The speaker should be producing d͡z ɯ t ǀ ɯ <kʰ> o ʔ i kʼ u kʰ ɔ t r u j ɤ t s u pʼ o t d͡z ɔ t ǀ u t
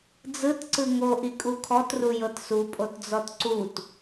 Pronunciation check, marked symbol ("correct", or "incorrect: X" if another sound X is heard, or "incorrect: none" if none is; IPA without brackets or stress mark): incorrect: ŋ